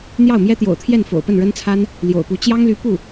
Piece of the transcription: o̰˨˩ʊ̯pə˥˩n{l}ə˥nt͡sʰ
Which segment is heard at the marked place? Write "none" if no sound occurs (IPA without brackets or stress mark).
ɻ